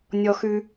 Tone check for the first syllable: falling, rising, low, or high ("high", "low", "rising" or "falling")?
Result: high